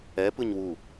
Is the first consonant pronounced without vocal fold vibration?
yes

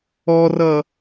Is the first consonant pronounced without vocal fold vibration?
no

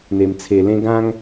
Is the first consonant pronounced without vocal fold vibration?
no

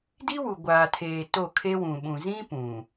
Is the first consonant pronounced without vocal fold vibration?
no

